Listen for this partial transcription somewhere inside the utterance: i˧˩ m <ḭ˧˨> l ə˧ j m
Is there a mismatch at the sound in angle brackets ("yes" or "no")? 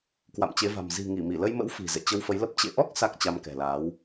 yes